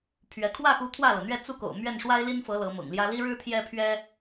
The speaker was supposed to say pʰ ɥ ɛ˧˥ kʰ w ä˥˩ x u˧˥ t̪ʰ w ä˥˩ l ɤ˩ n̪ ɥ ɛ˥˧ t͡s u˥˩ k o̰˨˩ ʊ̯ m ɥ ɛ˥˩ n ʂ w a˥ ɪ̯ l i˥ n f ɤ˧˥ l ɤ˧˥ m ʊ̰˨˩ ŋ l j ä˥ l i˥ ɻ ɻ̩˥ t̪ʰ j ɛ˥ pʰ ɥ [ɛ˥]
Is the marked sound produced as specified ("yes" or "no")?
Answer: yes